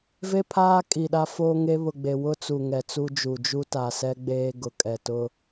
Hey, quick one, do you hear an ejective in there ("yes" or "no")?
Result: yes